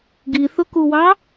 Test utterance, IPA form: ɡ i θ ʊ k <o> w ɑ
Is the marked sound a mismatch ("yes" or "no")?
yes